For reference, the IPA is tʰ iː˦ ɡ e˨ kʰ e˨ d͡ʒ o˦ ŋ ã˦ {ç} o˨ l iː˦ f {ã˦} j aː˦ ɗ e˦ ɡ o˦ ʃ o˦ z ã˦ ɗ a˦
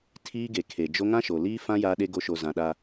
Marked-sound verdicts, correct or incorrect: incorrect, correct

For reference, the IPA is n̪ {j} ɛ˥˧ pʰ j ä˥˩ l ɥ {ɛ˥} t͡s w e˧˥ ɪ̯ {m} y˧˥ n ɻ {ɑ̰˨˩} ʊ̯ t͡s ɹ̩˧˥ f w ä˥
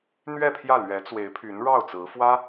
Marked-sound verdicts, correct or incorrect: incorrect, incorrect, incorrect, incorrect

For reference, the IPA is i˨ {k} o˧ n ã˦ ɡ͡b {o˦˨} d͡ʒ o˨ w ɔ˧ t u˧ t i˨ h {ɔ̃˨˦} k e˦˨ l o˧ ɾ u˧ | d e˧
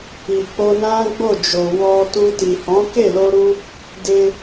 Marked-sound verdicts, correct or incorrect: incorrect, correct, correct

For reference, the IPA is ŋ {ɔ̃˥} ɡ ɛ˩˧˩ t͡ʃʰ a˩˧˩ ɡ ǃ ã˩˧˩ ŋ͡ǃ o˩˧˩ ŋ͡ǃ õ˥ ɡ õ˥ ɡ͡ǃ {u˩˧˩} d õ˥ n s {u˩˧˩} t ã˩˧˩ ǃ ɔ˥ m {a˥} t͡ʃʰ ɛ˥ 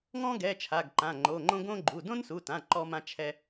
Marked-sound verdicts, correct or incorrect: correct, correct, correct, incorrect

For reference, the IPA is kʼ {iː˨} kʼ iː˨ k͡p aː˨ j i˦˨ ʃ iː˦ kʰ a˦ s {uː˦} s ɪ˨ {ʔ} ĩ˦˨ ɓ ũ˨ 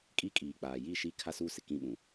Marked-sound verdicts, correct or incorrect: incorrect, correct, incorrect

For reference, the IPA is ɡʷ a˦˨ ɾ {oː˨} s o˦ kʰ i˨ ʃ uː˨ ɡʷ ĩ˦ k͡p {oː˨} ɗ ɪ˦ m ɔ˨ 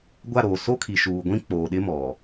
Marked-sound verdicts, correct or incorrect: correct, correct

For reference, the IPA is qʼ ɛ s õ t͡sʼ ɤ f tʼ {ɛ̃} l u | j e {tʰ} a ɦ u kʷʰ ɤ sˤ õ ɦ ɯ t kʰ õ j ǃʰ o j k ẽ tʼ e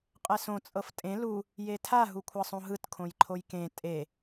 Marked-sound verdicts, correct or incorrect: incorrect, correct

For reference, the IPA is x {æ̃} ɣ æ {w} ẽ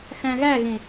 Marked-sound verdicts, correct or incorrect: correct, incorrect

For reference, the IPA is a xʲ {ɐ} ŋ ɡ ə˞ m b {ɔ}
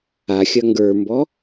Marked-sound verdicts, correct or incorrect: correct, correct

